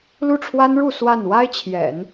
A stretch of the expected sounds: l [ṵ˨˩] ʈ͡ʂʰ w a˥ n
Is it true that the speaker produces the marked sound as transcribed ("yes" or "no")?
no